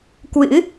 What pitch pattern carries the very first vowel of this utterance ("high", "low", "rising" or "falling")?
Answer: rising